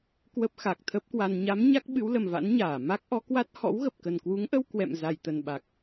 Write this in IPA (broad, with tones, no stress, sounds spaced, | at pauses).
k w ə˦˥ p̚ x a˨˩ k̚ t̪ʰ ə˦˥ p̚ k w a˧ n ɲ a˨˦ m ɲ a˦˥ k̚ ɓ ɨ˨˦ w l ə˨˩ m v a̰˧˥ n ɲ aː˧˩ m a˦˥ k̚ ʔ ɔ˨˦ k w a˦˥ t̚ h ɔ̰˧˥ w ɣ ə˨˩ p̚ k ə˨˩ n k w u˨˦ ŋ ʔ ə˧ w k w ɛ̰˧˨ m z a˨˩ j t̪ ə˨˩ n ɓ a˨˩ k̚